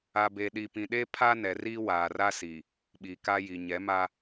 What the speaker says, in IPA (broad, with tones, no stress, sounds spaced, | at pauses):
a˨ b e˨ ɗ i˨ p ĩ˨ ɗ e˦ pʰ a˦ n ɛ˨ r iː˦ w aː˨ r a˦ s i˨ | ɓ i˨ k a˦ j i˨ ɲ ɛ˨˦ m a˦